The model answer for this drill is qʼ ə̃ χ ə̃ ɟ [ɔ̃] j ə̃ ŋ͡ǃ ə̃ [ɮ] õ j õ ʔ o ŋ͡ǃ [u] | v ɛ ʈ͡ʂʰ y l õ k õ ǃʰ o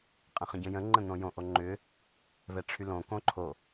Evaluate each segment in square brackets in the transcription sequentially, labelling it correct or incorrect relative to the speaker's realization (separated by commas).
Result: incorrect, incorrect, incorrect